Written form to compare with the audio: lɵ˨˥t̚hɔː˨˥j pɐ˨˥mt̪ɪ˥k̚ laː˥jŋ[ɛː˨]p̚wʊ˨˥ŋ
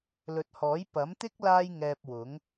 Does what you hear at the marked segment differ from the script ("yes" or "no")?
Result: yes